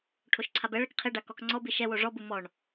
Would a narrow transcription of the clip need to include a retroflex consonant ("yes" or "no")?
yes